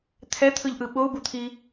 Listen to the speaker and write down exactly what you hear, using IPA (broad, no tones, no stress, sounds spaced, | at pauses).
t̪ʰ ɛ t̪ʰ ɯ ʎ ʔ ɯ ɓ o u̯ b u t̪ʰ i